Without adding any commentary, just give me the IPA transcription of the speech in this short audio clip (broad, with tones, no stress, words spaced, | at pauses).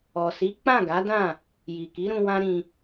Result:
ɔ˨si˨˦ k͡pã˦˨ɡa˨˦dã˦˨ | ji˨ki˨˦ɾũ˧ wã˦ɾĩ˧